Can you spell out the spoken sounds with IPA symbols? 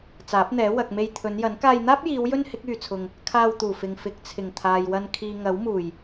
t͡s aː˨˥ p̚ n̪ ɛː˨˥ w ɐ˨ k̚ m e˧ j t̪ʰ ɵ˨˧ n j ɐ˨˥ n k aː˧ j n̪ aː˥ p̚ j iː˨˧ w j ɵ˥ n h ɪ˨˥ k̚ yː˨ t͡sʰ ʊ˨ ŋ | kʰ aː˧ w t̪ uː˨˩ f ɪ˨ ŋ f ɪ˨˥ k̚ t͡sʰ ɪ˨˩ ŋ t̪ʰ aː˨ j w ɐ˧ n kʰ iː˨ ŋ ɐ˨˥ w m uː˨˩ j

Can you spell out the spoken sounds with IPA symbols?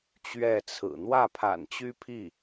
t͡ɕ ɥ ɛ˥˩ t͡sʰ ɹ̩˨˩ n̪ w ä˥˩ pʰ a̰˨˩ n t͡ɕ y˥ pʰ i˥˩

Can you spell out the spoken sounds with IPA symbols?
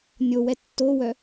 nʲ o w ɛ tː o w œ

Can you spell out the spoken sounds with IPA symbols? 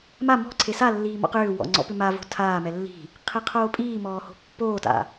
m a m ɔ̤ ǀʰ e s a lː iː m ɔ̰ q ʏː w ɔ̰ ŋ͡ǀ ɔ̰ p ʏ m a v o̤ tʰ aː m ɛ lː i̤ | qʰ e qʰ oː pʼ iː m ɔː h o̤ pː oː t a̰

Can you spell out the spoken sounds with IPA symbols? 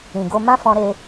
ĩ˨ ɡ o˧ m ã˦ f ɔ̃˧ ɾ e˧

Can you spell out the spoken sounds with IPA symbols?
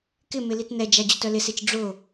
k ɪ m ɪ l i t n ɛ d͡ʒ a d͡ʑ ʊ t œ l ɪ s e t͡ʃ ɖ͡ʐ ʊ

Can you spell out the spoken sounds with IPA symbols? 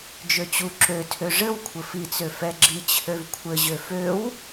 d͡ʒ ø t͡ɕ u ǁ ø tʰ ø ʐ ɘ w kʷʰ ɘ f i t͡s ø f ɛ ɡ͡ǁ i t͡ɕʰ ø v kʷʰ ɘ ʑ ø f ø w

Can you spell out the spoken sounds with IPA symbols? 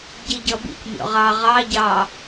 ɟ i ɟ ʌ b ḭ c mʲ ɔ̰ ʁ ɑ ʁ ɑ ɟ ɑ

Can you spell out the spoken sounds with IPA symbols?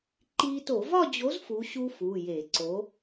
ǃ i˦˥ t o˧˩˧ v ɒ˥˧ d͡ʑ o˨˥ z f u˨˥ ɕ u˦˥ f u˩˧˩ j e˧˩˧ ǀ o˨˥

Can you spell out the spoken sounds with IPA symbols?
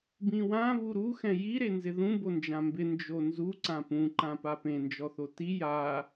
b ĩ w ã β u ɾ u x ɛ̃ j i ɾ e n z ɪ ð ũ b o n d͡ʒ ã m b ɪ n d͡ʒ o n z u ǀ ã p ũ ǃ ã p a p ẽ n d͡ʒ ɔ θ o t i j a

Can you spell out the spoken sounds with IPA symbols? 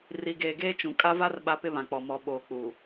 r i˨ ɡ eː˨ ɡ eː˦ t͡ʃ ũ˨ kʼ a˦ v a˦ r ɓ a˦ p ɪ˦ β ã˨ k͡p ɔ˨ m ɔ˨ ɓ oː˨ k͡p u˨

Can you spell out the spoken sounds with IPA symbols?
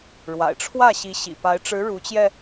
ɻ w a̰˨˩ ɪ̯ ʈ͡ʂʰ w ä˥˩ ɕ i˧˥ ɕ ḭ˨˩ p a˧˥ ɪ̯ ʈ͡ʂ ɻ̩˧˥ ɻ u˧˥ t͡ɕ j ɛ˧

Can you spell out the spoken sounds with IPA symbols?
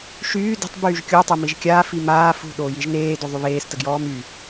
ʃ yː d ə̤ tˤ b yː ʒ kʲ o tˤ ø m i ʒ kʲ aː f i m aː f ṳ ɗ oː j i ʒ n eː d o ðˤ y β eː s t ə ɡ j ɔː m y

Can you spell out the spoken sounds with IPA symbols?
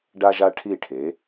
ɖ a˥ ʒ a˥ ʈʰ i˥˩ ʈʰ e˩˥

